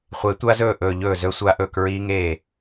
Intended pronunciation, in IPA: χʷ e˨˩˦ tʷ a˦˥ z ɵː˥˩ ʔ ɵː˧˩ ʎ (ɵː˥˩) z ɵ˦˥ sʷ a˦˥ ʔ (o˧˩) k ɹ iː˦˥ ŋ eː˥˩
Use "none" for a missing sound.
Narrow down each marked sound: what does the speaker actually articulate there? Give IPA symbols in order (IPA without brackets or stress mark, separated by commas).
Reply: ɵː˥˩, ɵ˧˩